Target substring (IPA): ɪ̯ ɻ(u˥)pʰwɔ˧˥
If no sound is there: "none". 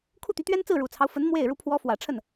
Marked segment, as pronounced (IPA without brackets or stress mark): u˧˥